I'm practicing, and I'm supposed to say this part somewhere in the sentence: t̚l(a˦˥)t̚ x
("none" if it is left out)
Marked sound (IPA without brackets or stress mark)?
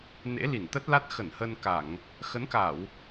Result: a˦˥